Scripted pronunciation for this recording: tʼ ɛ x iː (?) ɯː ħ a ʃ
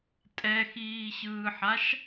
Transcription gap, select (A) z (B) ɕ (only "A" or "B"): B